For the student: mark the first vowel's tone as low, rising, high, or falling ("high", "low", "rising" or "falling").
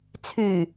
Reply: low